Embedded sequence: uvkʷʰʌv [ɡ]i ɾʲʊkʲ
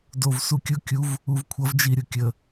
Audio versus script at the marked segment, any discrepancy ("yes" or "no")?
yes